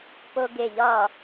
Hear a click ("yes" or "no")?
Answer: no